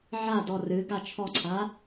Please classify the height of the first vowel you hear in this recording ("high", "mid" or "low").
low